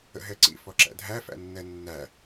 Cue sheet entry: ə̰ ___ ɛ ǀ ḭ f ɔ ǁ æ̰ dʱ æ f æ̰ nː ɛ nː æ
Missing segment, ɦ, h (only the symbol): ɦ